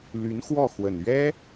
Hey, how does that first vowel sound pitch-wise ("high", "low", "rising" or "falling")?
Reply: rising